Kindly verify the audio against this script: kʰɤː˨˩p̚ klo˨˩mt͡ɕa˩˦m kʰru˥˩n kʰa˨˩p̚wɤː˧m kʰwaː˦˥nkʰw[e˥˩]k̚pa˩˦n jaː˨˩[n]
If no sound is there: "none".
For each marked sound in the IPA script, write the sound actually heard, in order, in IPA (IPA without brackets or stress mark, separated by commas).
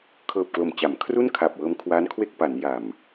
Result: e˥˩, m